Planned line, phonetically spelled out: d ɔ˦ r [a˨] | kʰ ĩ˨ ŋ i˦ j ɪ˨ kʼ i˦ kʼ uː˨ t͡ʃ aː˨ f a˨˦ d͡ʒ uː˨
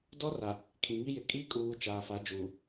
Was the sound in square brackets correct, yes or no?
yes